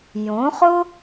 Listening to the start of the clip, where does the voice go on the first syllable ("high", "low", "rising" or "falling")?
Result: rising